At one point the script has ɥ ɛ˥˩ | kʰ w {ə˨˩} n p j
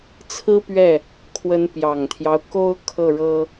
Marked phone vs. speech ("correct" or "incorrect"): incorrect